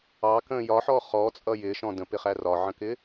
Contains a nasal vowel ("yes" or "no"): yes